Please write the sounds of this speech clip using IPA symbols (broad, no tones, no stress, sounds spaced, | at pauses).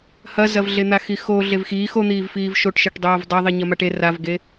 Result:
h ɐ z ɐ v ɮ e n̪ a x i x o ɮ e v x iː x o n̪ iː v f iː v ʃ o ʈ ʃ e ʈ dˤ oː v dˤ a ðˤ i ɲ ɐ m a ʈ e r a v ɡ e